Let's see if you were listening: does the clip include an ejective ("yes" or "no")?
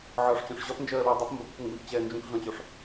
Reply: no